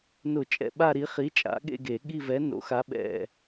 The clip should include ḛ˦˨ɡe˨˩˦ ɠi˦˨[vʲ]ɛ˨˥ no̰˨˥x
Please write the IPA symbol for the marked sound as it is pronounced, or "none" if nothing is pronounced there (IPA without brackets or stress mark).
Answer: v